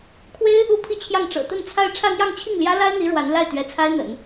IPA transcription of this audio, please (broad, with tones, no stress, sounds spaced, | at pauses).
kʰ w e˥ ɪ̯ | u˥ pʰ i˥˧ t͡ɕʰ j ɑ˥˩ ŋ ʈ͡ʂ ɤ̰˨˩ t̪ ə˥˧ n t͡sʰ a˥˧ ɪ̯ ʈ͡ʂʰ ä˥˧ n̪ j ɑ˥˧ ŋ t͡ɕʰ i˥˩ ŋ l j ä˥ l a˥ ɪ̯ n̪ i˧˥ ɻ w a˧˥ n l a˥˩ ɪ̯ t̪ ɥ ɛ˧˥ t͡sʰ a˥ ɪ̯ n̪ ə̰˨˩˦ n